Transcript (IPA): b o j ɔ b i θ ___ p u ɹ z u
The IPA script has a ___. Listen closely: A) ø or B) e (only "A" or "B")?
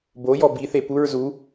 B